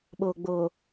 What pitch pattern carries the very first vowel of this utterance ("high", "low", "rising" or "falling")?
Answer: low